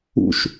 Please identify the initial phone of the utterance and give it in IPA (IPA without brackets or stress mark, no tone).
ṵ